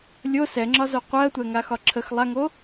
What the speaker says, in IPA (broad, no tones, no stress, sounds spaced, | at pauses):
lʲ o s ɛ ŋ͡ǁ ɒ z o qʷ ɜ tʷ ɛ ŋ a x ɒ ǁʰ ə x lˠ a ŋ o